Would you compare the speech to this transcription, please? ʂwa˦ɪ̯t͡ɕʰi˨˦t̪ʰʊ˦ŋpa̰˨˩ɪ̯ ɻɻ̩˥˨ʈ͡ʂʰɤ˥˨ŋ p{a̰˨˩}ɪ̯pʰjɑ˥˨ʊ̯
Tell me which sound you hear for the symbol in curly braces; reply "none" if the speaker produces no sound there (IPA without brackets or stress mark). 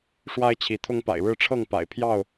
a̰˨˩